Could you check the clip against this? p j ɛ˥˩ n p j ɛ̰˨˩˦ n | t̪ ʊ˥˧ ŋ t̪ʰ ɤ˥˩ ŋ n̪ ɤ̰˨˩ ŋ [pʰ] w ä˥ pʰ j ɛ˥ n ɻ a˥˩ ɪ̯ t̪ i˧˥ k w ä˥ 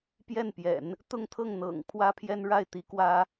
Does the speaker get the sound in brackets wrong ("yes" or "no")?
no